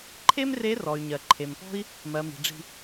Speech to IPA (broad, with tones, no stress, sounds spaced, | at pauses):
ǃʰ e˥ m r e˧˥ r ɔ˩ y̯ ɲ ɜ˩ ǃʰ e˩ m p ɔ̤˥ i̯ | m ɜ˩˧ m i̤˩ ɖ͡ʐ i̤˧